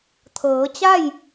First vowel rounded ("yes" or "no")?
no